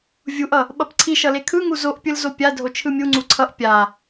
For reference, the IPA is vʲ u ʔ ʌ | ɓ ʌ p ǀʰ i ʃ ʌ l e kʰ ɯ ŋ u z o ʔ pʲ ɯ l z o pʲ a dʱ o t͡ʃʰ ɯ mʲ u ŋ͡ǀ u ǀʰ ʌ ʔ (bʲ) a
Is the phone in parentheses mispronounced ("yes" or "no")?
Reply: yes